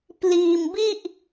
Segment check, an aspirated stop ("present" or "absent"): absent